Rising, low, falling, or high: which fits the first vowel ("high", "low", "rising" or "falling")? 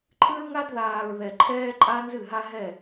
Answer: high